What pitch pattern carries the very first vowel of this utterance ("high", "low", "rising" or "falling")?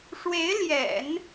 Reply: rising